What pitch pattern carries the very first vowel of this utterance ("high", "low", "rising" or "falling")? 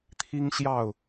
high